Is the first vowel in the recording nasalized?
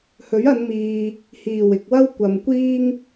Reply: no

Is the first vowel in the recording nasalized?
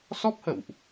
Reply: no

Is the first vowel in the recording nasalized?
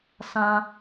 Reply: yes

